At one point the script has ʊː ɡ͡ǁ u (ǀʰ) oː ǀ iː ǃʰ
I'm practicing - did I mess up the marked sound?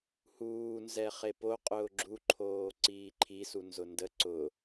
yes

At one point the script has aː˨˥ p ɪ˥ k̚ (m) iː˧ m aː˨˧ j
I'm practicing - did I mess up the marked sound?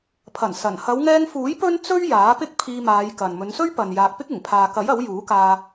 yes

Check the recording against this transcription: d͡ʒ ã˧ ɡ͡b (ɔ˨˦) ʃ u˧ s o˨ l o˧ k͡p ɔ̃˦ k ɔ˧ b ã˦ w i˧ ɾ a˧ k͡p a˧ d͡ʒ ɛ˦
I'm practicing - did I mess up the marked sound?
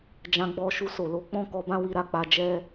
yes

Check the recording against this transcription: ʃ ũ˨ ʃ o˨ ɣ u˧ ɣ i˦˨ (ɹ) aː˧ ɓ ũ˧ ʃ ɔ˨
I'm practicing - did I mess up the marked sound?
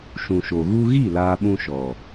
yes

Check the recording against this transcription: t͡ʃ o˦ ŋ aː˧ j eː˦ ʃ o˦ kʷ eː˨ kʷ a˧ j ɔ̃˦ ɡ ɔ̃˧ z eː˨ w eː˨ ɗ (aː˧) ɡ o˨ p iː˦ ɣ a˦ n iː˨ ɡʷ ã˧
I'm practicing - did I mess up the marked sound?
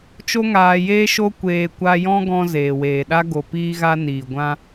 yes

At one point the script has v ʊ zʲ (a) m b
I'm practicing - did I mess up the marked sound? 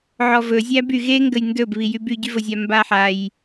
no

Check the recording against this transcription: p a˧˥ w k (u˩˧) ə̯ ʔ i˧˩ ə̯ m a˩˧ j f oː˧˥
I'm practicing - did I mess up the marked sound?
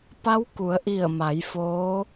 no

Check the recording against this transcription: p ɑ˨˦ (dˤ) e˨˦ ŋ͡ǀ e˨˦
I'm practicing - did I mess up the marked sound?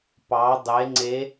no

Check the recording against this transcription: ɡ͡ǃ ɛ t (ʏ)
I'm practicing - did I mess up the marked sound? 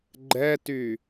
yes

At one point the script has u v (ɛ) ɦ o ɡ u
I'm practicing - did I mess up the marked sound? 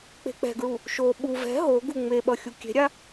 yes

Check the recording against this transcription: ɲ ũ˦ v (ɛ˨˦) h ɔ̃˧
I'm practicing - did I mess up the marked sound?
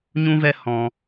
yes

